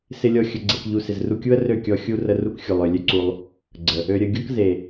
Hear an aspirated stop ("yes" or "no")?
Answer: no